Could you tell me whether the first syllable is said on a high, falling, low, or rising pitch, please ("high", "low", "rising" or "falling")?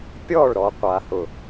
falling